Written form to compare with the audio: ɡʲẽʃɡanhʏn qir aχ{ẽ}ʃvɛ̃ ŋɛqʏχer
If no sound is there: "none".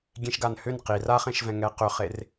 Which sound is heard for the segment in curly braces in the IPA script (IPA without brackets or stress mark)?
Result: ẽ